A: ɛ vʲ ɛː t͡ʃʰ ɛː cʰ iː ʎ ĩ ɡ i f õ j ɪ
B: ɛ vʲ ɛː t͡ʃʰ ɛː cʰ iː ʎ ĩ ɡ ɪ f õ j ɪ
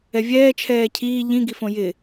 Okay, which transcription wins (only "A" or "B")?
A